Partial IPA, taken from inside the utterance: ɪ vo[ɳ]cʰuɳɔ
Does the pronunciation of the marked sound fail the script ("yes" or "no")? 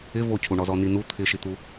yes